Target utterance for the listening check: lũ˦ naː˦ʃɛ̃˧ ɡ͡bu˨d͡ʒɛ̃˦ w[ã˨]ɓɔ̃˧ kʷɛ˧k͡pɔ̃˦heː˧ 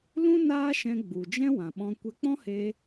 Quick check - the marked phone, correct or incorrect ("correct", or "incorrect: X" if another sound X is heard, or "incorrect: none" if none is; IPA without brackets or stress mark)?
correct